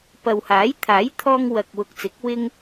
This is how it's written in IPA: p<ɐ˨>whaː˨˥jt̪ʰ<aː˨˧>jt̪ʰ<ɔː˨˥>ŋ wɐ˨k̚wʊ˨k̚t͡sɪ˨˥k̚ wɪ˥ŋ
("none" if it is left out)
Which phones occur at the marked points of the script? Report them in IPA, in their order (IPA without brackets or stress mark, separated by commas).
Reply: ɐ˨, aː˨˥, ɔː˧